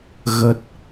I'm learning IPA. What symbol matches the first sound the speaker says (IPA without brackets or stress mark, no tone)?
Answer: ɣ